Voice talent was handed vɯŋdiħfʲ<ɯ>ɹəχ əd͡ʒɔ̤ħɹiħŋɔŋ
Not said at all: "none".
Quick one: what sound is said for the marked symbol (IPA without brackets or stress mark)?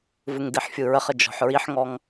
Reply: ɯ